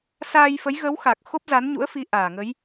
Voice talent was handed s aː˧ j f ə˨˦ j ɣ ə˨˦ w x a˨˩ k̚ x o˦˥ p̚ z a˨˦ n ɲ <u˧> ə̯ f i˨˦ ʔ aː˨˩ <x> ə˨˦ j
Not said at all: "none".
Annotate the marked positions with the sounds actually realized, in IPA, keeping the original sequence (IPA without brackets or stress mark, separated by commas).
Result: ṵ˧˥, ŋ